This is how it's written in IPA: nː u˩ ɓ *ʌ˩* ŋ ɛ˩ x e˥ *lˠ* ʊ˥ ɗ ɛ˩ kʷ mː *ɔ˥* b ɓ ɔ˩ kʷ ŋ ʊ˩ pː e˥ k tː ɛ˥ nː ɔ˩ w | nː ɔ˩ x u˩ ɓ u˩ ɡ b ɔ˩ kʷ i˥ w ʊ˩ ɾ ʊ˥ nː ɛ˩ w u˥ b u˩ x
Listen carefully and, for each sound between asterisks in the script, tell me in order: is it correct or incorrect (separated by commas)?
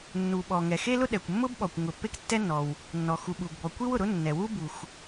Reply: incorrect, incorrect, incorrect